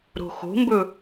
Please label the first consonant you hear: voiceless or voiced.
voiced